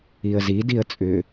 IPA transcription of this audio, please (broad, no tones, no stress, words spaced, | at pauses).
iə̯zidiə̯ t͡sʼʏ